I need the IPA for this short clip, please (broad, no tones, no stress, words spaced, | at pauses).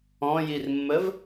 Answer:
ɔ̃jirmːəv